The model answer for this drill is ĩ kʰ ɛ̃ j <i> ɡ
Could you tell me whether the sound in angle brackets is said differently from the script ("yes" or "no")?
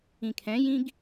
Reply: yes